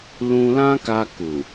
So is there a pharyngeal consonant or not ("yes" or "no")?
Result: no